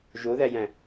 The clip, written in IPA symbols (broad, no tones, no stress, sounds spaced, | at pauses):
ʒ o ð æ j æ̃